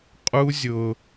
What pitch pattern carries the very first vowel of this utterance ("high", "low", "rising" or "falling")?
high